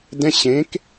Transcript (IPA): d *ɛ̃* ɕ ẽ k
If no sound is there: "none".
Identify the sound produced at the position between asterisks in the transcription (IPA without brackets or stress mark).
ɛ̃